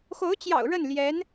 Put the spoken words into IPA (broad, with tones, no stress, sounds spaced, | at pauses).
x o˧˥ ʊ̯ t͡ɕ j ɑ̰˨˩ ʊ̯ ɻ ə˥˩ n l j ɛ˧˥ n